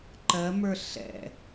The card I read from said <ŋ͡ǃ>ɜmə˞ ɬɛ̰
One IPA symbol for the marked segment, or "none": ǃ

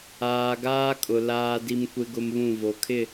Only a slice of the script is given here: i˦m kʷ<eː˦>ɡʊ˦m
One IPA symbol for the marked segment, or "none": e˦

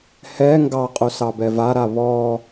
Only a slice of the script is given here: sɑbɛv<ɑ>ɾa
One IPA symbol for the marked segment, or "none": a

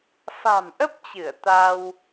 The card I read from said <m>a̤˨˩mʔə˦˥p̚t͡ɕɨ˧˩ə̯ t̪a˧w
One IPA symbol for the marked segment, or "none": f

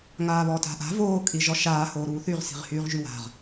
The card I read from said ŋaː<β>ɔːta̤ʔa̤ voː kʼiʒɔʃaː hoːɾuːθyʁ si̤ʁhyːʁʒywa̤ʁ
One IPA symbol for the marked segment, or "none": β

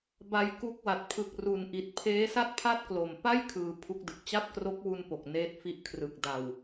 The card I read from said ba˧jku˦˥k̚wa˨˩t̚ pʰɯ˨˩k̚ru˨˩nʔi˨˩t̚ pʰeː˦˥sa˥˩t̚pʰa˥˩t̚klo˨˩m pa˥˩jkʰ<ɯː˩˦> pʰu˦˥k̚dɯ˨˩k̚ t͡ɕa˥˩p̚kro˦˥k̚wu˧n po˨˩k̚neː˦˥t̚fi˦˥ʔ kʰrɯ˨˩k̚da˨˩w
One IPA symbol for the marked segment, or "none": ɯː˩˦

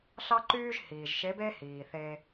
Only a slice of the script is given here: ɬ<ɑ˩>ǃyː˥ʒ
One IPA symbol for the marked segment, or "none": ɑ˥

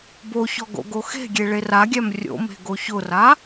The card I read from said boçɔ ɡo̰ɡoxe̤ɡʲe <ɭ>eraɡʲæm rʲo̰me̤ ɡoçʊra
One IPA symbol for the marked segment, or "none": ɭ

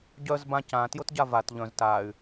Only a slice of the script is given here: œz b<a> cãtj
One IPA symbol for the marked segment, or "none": ã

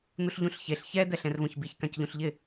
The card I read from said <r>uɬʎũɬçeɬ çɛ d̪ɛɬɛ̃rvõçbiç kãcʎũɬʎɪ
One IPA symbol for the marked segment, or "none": n̪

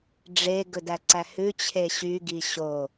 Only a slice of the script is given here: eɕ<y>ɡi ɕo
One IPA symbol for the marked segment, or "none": y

